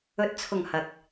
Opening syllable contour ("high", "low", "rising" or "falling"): rising